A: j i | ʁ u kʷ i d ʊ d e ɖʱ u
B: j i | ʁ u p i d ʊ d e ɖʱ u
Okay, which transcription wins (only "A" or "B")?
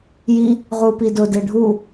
B